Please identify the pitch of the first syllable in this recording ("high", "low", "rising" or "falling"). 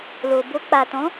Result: low